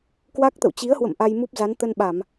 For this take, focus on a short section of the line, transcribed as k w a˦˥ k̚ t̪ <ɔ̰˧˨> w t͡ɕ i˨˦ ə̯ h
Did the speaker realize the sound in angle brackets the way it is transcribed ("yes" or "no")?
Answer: no